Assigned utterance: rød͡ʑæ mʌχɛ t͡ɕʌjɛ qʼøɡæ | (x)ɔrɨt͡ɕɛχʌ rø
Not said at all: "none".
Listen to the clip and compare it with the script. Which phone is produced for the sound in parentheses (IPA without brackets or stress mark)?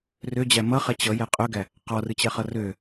q